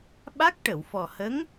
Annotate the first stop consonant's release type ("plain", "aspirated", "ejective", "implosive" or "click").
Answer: implosive